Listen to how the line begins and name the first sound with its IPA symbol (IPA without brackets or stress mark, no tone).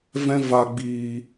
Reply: v